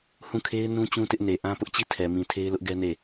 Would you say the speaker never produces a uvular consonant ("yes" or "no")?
yes